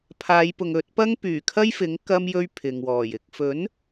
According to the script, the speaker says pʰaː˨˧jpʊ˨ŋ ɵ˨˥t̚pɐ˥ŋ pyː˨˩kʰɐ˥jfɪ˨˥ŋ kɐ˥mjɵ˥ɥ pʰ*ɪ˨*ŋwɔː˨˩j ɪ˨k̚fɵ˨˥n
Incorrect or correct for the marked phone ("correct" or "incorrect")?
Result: correct